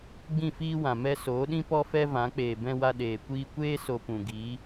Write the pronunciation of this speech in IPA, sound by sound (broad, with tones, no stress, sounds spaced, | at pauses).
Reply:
ɡ͡b ĩ˦˨ f iː˦ w ã˨ m ɛ˧ s oː˨˦ ɗ ĩ˦ p ɔ˦ f ɛ˦ v ã˨˦ k͡p eː˨ b ɛ̃˧ w a˧ ɗ eː˨ kʷ iː˧ kʷ eː˦ s o˧ p ũ˨ ɡ iː˨˦